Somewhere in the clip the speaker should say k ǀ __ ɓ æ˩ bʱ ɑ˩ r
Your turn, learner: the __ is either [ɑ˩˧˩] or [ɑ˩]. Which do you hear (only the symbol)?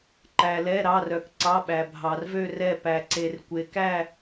ɑ˩˧˩